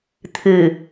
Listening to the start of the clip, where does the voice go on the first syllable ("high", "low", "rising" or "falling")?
low